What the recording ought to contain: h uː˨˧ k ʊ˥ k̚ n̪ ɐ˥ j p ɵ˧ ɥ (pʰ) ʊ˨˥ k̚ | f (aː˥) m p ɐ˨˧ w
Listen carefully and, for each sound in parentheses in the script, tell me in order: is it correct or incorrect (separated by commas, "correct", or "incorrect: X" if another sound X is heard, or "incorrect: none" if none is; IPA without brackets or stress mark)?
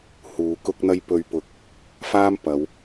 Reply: incorrect: p, correct